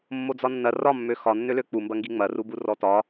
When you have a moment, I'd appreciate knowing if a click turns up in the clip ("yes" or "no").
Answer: no